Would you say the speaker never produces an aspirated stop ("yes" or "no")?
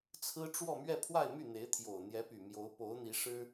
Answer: no